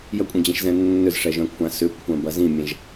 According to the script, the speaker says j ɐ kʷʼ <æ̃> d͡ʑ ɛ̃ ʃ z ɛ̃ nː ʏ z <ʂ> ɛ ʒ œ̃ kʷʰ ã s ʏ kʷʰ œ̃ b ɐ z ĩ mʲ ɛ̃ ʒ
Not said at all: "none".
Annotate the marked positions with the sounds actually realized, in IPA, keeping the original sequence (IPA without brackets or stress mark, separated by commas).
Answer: ɛ̃, ʂ